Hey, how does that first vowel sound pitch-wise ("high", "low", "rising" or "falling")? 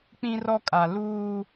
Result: high